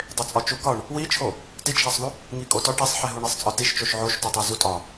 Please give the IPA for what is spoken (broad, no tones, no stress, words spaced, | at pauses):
dˤet͡sʼɒt͡ʃukɒɳ | wit͡ʃʰo | tit͡ʃʰæsˤðu | ŋikʼotɒ ʈesˤħeɦuɳ isˤt͡sʼɒtiʃt͡ʃoʃ ʕoʃtotˤæ zutʼɒ